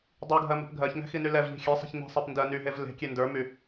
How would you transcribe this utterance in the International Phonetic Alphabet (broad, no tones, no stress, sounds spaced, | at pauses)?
dˤ i ɡʱ ɜ m ɛ̤ p ɡʱ ɜ ç ŋ ɛ̤ x i n y l ɛ v ʎ i̤ xʲ ɛ sˤ ɛ̤ ç n i̤ sˤ ɛ p n d ɜ n y ɦ e v l e̤ kʲ e n d ə˞ m y